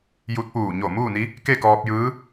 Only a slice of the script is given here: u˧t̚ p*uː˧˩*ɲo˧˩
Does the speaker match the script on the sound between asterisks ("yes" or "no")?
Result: yes